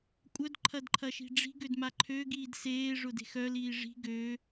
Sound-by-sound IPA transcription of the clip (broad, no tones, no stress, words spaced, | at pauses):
kʷʼœd ǃʰɐdǃʰɐʃi̤ɖ͡ʐi̤ ɡødmaǃʰø ɡiːdseː ʐʊde̤xœ liːʐi̤ ɡø